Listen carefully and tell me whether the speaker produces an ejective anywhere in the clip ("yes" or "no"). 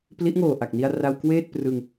no